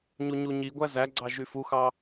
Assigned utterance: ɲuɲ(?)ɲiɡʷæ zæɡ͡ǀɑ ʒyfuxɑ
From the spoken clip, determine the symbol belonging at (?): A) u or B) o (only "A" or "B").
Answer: A